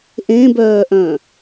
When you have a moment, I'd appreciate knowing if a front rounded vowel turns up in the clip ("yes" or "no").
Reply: yes